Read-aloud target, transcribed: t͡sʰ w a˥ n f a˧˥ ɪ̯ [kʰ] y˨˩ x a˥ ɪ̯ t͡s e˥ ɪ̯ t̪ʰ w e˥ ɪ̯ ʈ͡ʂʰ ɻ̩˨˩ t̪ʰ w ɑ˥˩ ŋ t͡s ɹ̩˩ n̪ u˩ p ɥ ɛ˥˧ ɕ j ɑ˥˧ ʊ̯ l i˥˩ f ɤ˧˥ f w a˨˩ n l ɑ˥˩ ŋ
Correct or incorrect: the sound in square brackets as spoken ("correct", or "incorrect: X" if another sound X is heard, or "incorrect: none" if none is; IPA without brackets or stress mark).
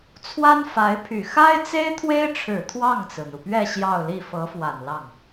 incorrect: pʰ